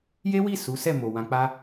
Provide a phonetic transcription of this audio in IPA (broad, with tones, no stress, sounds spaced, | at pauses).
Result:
j e˦ w i˦˨ s u˨˦ s ɛ˦˨ m o˨ w ã˨ k͡p a˧